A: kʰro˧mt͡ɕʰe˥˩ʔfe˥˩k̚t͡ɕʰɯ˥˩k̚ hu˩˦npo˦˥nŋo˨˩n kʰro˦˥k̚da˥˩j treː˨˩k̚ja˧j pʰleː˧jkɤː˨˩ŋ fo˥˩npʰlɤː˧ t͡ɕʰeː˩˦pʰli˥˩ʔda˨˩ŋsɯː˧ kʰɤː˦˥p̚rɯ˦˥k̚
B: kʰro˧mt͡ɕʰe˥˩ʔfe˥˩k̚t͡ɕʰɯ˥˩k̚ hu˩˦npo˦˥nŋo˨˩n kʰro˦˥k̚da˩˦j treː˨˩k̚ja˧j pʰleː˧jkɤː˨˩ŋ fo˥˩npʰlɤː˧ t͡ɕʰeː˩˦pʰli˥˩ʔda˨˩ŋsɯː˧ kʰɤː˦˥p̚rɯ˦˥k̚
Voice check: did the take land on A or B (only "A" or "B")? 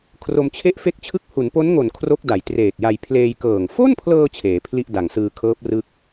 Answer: B